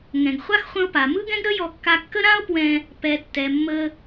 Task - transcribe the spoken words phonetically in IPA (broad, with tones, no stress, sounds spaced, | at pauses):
ŋ ɛ̃˩ ɡ χʷ a˥ x χʷ ə̃˧ o̯ p a˩ m ɯ˥ ɡ ɛ̃˥ ɡ ɾ ə˥ j ɔ˧ kː a˧ kː ə˥ ɾ ã˥ o̯ p w ɛ̃˧ | p ɛ˩ tː ɛ˩ mː ə˧